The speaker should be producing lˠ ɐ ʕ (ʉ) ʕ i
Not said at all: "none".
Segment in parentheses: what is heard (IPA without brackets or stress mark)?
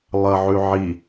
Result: ʉ